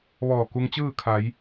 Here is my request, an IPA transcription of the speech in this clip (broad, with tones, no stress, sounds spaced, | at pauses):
ʋ ɔː˧˩ k u˧ ŋ t͡ɕ ɯː˥˨ kʰ a˩˧ j